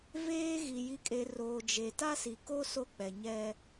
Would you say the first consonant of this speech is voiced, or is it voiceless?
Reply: voiced